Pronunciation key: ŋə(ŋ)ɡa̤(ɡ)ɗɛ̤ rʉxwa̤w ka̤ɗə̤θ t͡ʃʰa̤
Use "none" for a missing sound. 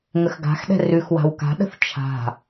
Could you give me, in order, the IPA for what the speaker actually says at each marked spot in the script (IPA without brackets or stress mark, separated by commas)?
x, x